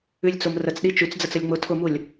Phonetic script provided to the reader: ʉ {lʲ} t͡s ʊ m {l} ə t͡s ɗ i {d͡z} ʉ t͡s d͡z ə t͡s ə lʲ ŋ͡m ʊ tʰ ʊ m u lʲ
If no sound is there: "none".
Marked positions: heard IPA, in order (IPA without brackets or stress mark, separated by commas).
lʲ, r, t͡ʃ